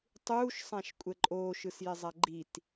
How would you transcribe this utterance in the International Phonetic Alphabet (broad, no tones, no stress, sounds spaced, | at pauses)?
tˤ uː ʃ sˤ ã ʃ kʷʼ ɛ ǃʼ oː ʃ ɯ s j ɛ zˤ a ɡ͡ǃ i t